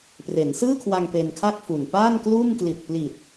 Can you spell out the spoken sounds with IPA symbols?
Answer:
pre˩˦nsɯː˥˩kʰwa˧ŋ pe˧nkʰa˥˩k̚fu˨˩n paː˥˩nkluː˥˩m kli˨˩t̚pli˨˩t̚

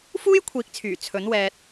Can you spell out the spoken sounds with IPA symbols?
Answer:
fuː˥jkʷʰiː˨˥k̚t͡sʰyː˨˩ t͡sʰɵ˨˥nwɛː˧t̚

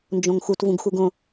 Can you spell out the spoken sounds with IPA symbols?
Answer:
nd͡ʒõŋxut vũɡxuɡõ

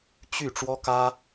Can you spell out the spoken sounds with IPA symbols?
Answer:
t͡ɕy˥˩ ʈ͡ʂwɔ˥kä˥

